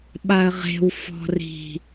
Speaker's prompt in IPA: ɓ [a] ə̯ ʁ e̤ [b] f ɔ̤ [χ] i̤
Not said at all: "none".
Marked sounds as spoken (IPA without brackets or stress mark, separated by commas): a, w, r